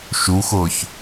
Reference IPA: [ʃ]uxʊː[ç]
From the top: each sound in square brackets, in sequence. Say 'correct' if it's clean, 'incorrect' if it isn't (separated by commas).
correct, correct